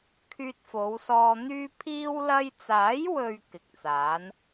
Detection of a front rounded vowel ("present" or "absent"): present